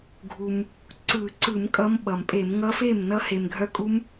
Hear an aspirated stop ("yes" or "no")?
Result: no